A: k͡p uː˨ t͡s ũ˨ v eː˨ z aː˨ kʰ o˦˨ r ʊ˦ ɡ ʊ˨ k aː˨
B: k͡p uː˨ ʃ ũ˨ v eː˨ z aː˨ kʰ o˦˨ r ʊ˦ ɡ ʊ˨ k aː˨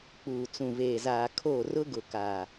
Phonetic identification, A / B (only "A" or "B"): A